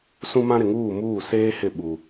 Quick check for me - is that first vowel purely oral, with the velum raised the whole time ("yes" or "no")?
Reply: no